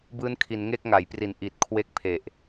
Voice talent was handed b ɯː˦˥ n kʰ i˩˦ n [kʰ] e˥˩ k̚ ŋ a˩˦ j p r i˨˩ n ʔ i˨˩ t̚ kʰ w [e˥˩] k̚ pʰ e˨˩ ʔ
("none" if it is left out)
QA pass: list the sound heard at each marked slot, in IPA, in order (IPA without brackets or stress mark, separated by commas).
ŋ, e˥˩